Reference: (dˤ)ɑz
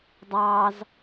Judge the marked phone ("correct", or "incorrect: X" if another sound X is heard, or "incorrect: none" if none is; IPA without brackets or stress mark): correct